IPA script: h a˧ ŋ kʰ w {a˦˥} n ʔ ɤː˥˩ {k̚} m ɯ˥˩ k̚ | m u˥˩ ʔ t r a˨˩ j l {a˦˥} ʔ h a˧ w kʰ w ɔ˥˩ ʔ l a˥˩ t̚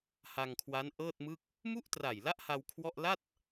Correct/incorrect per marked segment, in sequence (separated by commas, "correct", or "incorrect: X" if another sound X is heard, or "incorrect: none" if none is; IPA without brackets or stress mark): correct, incorrect: t̚, correct